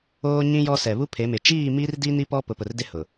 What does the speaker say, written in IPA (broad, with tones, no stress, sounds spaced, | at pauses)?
oː˦ ɲ ĩ˦ j ɔ˦ s ɛ˨ β u˦ pʰ e˨˦ m ɪ˨ t͡ʃ iː˦˨ m i˦ r d i˦ n i˦ p ɔ˦ p ʊ˨˦ p ʊ˨ r d ɪ˦ h ʊ˨